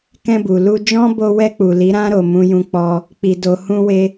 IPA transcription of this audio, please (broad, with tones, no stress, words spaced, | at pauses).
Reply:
kɛ̃˧bu˨lu˧d͡ʒɔ̃˦ bo˧wɛ˧k͡pu˨ li˨˦ɾã˦ɾo˧ mũ˦jũ˦k͡pɔ˦ | k͡pi˧do˧ hũ˦we˦